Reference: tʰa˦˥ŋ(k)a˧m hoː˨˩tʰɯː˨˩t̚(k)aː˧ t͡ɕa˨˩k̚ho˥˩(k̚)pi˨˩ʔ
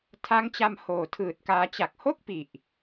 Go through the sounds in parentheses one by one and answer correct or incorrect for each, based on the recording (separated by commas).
incorrect, correct, correct